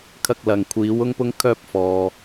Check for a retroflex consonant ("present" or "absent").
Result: absent